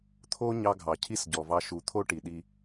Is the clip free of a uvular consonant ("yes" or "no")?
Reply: yes